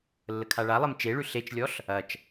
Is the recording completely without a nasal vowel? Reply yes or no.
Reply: yes